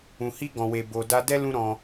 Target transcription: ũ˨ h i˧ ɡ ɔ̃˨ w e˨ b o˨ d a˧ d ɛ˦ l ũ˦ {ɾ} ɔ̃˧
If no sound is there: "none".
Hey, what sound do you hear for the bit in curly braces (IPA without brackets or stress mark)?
ɾ